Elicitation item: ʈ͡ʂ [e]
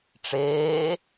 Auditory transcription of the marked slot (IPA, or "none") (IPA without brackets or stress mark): eː